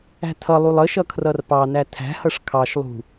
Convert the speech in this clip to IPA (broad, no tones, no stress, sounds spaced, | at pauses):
æ̤ tʰ ʌ lˠ u lˠ ə ʃ ʌ kʰ r ʌ r p ɑ n æ tʰ æ̤ h ʌ ʂ kʰ ɑ ʃ lˠ ṳ